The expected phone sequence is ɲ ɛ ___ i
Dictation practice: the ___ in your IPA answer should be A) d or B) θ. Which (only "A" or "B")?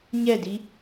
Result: A